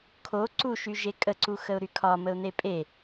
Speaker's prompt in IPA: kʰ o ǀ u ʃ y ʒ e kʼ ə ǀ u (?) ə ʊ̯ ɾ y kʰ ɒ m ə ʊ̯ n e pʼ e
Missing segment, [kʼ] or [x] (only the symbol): x